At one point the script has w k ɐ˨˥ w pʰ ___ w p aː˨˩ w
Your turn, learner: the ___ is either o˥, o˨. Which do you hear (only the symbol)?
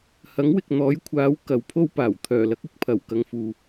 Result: o˥